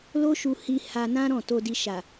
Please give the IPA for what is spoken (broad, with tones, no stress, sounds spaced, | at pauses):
l o˦ ʃ u˧ h i˧ h a˧ n ã˦ ɾ ɔ̃˦˨ t o˧ d i˧ ʃ a˨